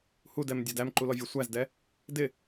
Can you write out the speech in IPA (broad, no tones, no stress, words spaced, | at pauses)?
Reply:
hudɛmdʲɒd æmǃulɔvʲɔ sʷæzdɛ | dɪ